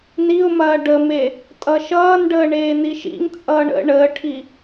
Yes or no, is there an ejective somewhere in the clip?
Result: yes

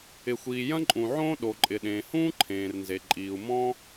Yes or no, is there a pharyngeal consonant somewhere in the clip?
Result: yes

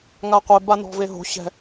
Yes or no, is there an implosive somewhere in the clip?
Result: no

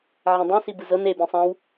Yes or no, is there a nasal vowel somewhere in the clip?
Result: yes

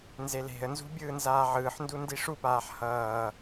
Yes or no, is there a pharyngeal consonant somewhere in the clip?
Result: yes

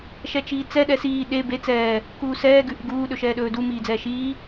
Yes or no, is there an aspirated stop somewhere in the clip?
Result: no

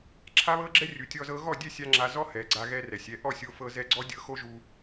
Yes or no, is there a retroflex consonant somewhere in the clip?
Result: no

